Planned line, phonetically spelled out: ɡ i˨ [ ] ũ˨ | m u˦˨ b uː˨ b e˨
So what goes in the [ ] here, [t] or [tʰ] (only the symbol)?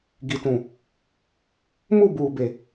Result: t